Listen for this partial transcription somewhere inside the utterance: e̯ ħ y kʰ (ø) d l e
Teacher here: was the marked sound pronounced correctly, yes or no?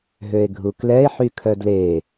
no